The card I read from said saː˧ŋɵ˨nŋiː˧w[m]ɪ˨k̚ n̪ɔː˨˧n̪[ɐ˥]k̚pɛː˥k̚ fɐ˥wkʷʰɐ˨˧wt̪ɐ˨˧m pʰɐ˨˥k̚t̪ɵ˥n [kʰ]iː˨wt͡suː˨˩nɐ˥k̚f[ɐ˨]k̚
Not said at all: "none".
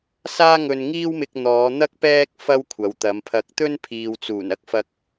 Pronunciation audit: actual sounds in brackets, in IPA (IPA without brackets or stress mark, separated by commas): m, ɐ˥, pʰ, ɐ˧